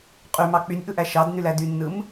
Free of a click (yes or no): yes